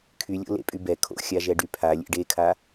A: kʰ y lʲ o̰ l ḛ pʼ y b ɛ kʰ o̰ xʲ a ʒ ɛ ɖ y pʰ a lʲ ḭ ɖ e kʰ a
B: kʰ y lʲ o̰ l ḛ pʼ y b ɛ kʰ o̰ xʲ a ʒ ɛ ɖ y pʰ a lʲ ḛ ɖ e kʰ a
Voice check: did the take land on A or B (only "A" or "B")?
B